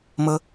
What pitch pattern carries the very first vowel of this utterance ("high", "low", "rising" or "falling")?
high